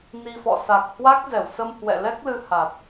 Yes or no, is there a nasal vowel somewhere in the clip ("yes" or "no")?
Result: no